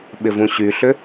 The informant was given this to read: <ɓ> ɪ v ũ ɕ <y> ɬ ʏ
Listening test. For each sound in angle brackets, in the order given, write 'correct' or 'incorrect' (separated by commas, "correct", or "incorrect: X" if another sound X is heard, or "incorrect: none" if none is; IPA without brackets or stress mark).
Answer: correct, correct